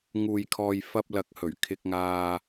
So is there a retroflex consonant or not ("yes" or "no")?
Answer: no